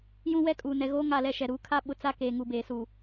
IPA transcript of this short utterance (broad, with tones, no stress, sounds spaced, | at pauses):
j ũ˦ w ɛ˦ kʼ uː˨ n ɛ˨ ɣ oː˦ ŋ a˦˨ l ɛ˦ ʃ ɛ˨ ɾ uː˦ kʰ a˦ ɓ ʊ˨ t͡s a˦ k eː˨ ŋ u˨ b eː˨ s uː˨